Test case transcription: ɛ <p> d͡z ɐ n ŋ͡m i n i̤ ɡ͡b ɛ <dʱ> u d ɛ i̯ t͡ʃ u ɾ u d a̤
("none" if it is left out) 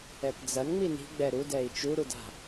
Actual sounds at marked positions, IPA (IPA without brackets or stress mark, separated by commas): p, ɾ